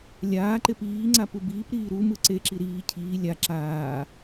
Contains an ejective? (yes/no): no